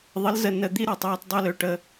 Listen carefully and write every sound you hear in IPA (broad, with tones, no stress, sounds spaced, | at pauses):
ðˤ ə˨˦ l z ə˨ n ə˨ d̪ i˦ ɾ ə˞˨ tˤ j ɔ˧ t dˤ ø˦ l ø˧ ʈ ə˧